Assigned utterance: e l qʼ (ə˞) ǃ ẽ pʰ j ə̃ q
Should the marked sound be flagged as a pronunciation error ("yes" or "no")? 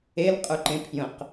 no